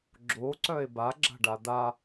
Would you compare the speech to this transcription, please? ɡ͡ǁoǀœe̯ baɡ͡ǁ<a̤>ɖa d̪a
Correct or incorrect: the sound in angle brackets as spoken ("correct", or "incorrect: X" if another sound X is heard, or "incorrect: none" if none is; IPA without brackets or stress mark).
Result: correct